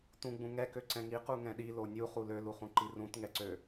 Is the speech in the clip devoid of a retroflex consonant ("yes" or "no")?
yes